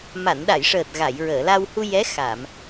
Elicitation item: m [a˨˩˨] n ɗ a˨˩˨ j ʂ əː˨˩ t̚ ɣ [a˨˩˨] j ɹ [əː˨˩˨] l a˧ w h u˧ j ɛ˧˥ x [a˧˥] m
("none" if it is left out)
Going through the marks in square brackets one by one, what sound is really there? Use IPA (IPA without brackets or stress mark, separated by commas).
a˨˩˨, a˨˩˨, əː˨˩˨, a˨˩˨